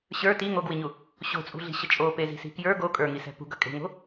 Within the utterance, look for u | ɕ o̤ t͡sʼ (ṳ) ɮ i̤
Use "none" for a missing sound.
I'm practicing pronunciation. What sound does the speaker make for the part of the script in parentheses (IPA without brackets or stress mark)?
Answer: ṳ